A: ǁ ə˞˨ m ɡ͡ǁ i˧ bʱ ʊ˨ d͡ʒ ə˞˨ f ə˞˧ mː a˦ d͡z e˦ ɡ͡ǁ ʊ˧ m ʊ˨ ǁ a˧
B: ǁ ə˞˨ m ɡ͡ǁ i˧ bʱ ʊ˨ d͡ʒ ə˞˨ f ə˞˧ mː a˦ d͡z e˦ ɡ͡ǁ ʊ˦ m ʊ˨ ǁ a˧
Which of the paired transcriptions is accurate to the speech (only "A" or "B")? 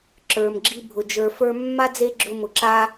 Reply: A